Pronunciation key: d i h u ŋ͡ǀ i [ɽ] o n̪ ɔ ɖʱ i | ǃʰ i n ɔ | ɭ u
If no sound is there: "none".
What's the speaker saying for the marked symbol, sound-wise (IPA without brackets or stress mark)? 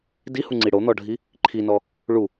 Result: ɽ